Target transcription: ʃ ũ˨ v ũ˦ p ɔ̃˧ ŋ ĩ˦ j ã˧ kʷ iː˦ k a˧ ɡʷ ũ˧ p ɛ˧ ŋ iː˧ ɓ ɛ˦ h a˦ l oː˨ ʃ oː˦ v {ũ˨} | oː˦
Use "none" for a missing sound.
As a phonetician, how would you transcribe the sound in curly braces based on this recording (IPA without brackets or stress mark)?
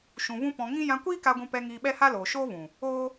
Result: ũ˨